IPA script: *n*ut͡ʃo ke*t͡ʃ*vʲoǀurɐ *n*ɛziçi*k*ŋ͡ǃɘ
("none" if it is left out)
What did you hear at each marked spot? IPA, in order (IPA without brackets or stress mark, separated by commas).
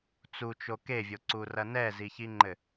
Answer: t͡s, none, n, none